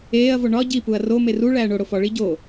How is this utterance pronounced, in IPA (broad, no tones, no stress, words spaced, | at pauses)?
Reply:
eːɐ̯vo ɳɒ ɟipuɐ̯ romer u ɭæːɳoɽo fɒɭi ɟo